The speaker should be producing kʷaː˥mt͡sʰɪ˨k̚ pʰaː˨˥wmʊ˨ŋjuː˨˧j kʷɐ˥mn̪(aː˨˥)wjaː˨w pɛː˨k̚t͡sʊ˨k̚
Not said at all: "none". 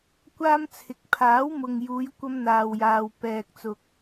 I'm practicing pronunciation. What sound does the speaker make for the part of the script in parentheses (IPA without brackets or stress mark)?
aː˨